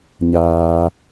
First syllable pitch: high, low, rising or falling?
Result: low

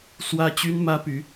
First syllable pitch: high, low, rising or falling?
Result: high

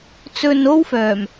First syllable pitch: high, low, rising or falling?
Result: low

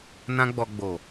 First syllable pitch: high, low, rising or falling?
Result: high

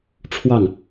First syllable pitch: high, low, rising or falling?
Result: falling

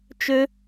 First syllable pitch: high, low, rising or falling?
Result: high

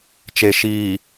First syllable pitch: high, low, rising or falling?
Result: low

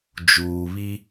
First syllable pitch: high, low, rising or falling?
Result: low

